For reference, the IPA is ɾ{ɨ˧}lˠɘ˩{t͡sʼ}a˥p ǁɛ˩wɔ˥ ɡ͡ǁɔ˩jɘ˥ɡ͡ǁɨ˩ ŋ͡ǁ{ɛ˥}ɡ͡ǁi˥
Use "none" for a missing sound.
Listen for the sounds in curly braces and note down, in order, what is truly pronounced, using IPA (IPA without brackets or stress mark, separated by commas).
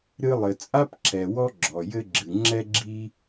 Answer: ɨ˧, t͡sʼ, ɛ˥